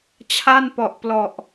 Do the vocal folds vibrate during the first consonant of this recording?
no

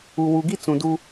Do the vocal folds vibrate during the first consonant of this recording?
yes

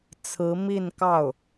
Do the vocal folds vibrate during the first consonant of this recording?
no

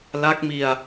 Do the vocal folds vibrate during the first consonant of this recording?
yes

